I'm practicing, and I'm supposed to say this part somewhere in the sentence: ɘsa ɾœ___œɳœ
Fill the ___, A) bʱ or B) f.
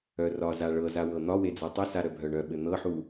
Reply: A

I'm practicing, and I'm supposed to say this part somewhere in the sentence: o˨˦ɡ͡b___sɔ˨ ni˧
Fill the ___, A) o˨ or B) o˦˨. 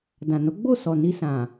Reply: B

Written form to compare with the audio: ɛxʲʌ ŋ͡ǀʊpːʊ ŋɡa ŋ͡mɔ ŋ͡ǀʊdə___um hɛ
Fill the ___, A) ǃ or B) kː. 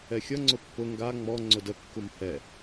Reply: B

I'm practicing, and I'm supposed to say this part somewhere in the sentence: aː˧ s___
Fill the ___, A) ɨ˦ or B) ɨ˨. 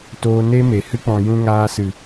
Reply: B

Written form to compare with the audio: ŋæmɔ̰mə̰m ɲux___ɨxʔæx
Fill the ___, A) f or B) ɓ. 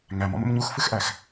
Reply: A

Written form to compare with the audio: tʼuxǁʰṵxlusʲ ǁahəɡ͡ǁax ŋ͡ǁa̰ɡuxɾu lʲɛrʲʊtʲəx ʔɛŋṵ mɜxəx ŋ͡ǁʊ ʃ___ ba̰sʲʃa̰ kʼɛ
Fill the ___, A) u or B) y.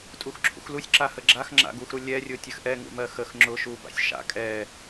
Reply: A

